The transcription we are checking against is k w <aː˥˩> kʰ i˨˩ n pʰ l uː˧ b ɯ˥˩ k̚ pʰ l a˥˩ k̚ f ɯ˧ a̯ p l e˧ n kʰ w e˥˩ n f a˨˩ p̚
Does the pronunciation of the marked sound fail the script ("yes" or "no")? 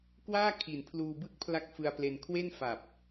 no